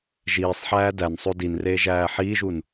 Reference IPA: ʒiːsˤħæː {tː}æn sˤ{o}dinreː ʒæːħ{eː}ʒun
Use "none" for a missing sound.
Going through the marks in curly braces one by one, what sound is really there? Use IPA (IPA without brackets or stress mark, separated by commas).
d, o, iː